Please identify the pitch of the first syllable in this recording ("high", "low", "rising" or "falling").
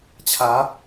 rising